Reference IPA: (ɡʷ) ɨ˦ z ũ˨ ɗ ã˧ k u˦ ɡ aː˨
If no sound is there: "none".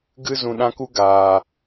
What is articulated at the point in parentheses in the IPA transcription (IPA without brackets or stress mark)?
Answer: ɡ